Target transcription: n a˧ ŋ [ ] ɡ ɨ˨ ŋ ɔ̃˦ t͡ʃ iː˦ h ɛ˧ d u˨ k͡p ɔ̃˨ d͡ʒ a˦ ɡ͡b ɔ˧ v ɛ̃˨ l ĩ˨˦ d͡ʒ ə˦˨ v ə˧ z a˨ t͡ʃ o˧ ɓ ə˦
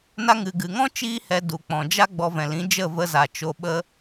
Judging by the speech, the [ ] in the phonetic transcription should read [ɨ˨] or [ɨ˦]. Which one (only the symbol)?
ɨ˨